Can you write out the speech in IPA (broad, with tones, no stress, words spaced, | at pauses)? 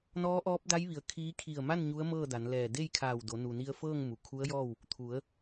nɔː˧˥ʔɔː˧˥p̚da˧˥jʋi˩˧ə̯ kʰiː˧˥ kʰi˧˩ə̯ma˥˨n ɲu˧˥ə̯mɤː˥˨da˩˧nlɛː˧˩ de˥˨jkʰaː˧˩wdo˩˧ nu˩ni˧ə̯fɤː˥˨ŋ mu˩kʰu˧˥ə̯jɔː˥˨w | t̪ʰu˩˧ə̯